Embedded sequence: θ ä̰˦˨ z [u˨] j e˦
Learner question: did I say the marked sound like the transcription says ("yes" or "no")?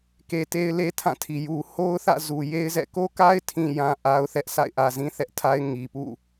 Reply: yes